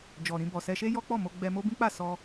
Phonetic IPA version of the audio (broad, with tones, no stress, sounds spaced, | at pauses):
d͡ʒ ɔ˨ ɾ ĩ˧ b ɔ˨ s ɛ˧ ʃ e˦ j ɔ˦ k͡p ɔ˦˨ m o˧ ɡ͡b ɛ˧ m o˦ b ĩ˦ k͡p a˦˨ s ɔ˧